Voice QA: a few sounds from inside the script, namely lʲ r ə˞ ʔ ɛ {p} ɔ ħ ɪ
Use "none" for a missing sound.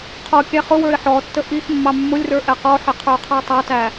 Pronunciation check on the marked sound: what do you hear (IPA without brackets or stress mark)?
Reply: q